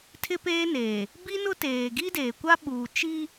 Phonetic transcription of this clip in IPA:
tʰɪ˦peː˦neː˨ | bi˦ nʊ˦teː˨ ɡi˦deː˨kʷa˦ ɓuː˨t͡ʃi˦

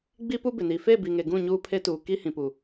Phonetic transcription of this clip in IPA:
ɡ͡bi˦pu˦bɪ˨ni˨ fe˦˨bi˨ŋe˨ ɡũ˦˨ɲuː˦pʰe˦ tuː˨ ki˦hĩ˨pu˨

